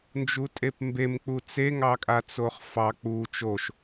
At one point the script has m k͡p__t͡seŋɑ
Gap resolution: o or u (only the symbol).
u